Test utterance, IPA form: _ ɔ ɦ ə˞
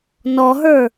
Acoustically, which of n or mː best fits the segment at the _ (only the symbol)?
n